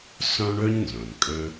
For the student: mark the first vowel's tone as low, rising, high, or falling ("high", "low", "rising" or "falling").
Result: high